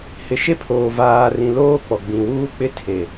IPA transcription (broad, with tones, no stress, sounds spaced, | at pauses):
h ɪ˨ ʃ e˦ pʰ oː˨ v aː˨ r ĩ˨ l oː˦ k͡p ɔ˨ ɡ͡b ĩ˨ w uː˦ k͡p ɪ˦ tʰ e˨